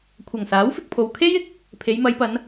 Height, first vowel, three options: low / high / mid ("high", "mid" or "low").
low